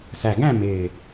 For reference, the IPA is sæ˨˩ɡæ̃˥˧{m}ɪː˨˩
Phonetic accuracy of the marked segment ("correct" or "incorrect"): correct